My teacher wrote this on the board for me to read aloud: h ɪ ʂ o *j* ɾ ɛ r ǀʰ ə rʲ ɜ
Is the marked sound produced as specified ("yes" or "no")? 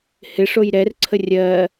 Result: yes